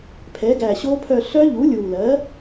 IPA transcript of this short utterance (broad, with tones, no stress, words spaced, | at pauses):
pʰɛ˩˥ɡæ˨˩ɕo˦˥pʰœ˦˨ ɬœ˦˥ʎu˩˥lʲu˨˩lɜ˩˥